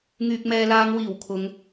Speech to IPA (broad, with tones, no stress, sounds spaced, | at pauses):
ŋ yː˨ k̚ m ɛː˨ l aː˨˧ ŋ w iː˨˩ w kʰ ʊ˨˧ ŋ